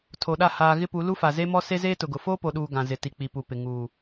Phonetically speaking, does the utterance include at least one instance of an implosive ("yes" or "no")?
yes